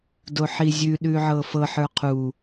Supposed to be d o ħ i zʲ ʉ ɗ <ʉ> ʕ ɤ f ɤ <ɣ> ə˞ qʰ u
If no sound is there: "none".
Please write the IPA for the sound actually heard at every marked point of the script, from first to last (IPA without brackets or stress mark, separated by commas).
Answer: ʉ, ħ